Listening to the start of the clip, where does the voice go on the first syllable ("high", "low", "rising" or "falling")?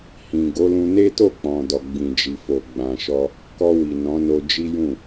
low